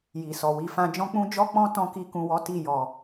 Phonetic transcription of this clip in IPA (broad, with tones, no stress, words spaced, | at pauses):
ji˨sɔ˨wi˧fã˦ d͡ʒɔ̃˦k͡pũ˦ d͡ʒɔ˦k͡pɔ̃˦ tɔ̃˧ ki˧kũ˨wɔ˨˦ ti˦˨jɔ˨